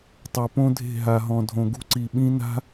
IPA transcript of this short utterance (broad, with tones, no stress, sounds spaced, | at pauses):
tˤ o˨ p õ˦ dʱ e̤˦˨ ɦ a˨ ɦ ɔ̃˨ dʱ õ˨ ɡ ṳ˦ ǀ i˨ ɓ ĩ˦ n a̤˦